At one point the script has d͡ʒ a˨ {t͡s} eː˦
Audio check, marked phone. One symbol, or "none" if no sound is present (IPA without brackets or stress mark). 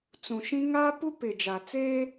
t͡s